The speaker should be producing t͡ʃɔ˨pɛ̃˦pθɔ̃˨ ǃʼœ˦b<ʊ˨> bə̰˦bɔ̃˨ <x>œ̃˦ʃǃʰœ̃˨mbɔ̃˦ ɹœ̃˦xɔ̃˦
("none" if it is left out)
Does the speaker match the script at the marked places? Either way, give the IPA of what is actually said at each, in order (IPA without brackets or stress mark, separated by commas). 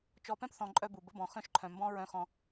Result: u˨, x